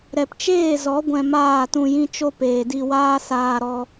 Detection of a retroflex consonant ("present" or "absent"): absent